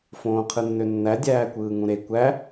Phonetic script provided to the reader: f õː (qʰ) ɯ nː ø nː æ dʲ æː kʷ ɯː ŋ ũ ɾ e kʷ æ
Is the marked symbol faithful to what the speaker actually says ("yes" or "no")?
yes